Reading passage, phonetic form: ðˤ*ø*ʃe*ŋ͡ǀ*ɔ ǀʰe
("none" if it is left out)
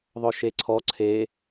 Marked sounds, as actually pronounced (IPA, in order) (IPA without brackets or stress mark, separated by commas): œ, ǀʰ